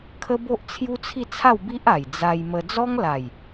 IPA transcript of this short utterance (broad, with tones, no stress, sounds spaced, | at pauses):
kʰ ə˦ b o˦ ʔ t͡sʰ j u˦ t͡sʰ i˥˧ t͡sʰ a˥˧ w b i˦ ʔ a˨˩ j d͡z a˧ j m ə˧ d͡z ɔ˦ ŋ l a˨˩ j